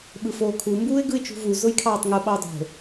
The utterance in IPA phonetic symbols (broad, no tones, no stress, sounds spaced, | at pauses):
ɓ ɯ f oː kʰ u m b uː ɪ̯ ɡ ɯ ɪ̯ t͡ʃ ṳ v u z ʊ j kʰ ɑː tˤ ŋ ʊ ɓ ɑ ʊ̯ dˤ o̤